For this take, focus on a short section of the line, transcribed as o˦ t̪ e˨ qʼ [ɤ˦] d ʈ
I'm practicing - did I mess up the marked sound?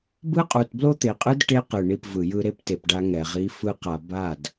yes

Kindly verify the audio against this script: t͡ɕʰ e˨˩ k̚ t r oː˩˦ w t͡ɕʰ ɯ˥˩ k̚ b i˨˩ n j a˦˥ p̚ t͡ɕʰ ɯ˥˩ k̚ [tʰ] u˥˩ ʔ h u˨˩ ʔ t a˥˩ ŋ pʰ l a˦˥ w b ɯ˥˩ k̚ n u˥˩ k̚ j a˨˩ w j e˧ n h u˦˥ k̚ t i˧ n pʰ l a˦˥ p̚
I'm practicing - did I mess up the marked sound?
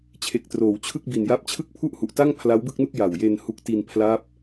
yes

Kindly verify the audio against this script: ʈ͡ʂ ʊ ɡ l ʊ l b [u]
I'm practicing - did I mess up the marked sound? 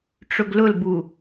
no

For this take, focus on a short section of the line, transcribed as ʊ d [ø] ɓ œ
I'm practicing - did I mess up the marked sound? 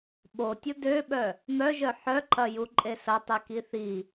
no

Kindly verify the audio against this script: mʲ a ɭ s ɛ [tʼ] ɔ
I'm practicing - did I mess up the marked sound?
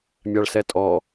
no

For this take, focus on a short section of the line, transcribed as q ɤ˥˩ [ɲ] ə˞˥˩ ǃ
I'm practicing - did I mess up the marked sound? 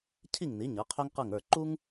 yes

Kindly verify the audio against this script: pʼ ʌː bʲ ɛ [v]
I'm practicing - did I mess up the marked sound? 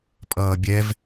no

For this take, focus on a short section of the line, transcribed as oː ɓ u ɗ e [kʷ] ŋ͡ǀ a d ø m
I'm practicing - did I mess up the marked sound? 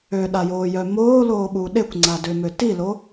no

